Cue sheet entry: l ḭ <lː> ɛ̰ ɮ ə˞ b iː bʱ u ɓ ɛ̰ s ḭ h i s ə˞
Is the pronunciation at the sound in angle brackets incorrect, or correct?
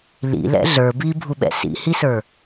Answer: incorrect